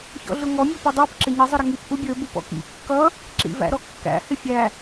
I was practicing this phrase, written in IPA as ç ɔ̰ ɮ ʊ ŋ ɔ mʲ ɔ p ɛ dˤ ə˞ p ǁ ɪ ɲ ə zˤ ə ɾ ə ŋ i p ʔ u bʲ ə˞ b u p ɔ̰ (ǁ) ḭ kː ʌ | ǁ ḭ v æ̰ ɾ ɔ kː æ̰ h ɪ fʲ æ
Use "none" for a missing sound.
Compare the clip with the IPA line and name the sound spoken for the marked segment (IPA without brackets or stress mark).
k